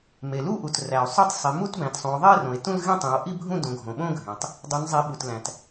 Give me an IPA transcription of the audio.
me˩lu˥˧ʔu˩t ræ˩o̯sˤo˥˧tˤ sˤi˩˧mu˥˧tbæ̃˩˧tsˤũ˩˧o̯ ðˤe˥˧rõ˩e̯ tũ˥˧l ɣẽ˥˧tˤẽ˩˧o̯ʔi˥˧bʱũ˥˧ dõ˩˧ɡʱõ˩ɓõ˥˧ɡʱẽ˩tˤ | dˤu˩˧nzˤi˩˧ ɓu˩tlæ̃˩t

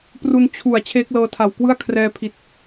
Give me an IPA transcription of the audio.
pru˧n t͡ɕʰu˨˩a̯ t͡ɕʰeː˦˥k̚lɤː˧tʰa˨˩wkwɯ˥˩a̯ kʰrɛː˧pʰi˨˩t̚

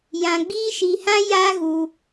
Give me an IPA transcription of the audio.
jã˧ɡ͡biː˦ʃi˧hã˦ ja˦ ɣu˦

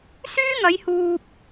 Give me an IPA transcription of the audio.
syː˥ŋɐ˨˧jhuː˨p̚

